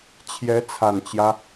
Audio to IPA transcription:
t͡ɕʰ j ɛ˧˥ t͡sʰ a˨˩ n t͡ɕ j ä˦

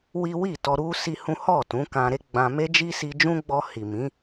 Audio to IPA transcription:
w i˦ w i˦˨ t ɔ˧ ɾ u˦ s i˦ h ũ˦ h ɔ˦˨ t ũ˨˦ k ã˧ ɾ e˦ ɡ͡b ã˧ m e˦ d͡ʒ i˦ s i˧ d͡ʒ ũ˦ ɡ͡b ɔ˧ h i˨ m ĩ˨˦

